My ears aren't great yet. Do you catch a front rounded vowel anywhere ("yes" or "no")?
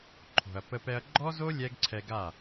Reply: no